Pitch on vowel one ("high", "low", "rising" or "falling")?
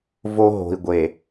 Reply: high